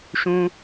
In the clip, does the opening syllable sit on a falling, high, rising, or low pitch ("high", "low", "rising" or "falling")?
high